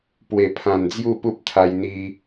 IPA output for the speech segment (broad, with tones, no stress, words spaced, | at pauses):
pwe˨˩pʰã˨˩n d͡zju˥˧pu˦p̚t̪ʰa˧jn̪i˧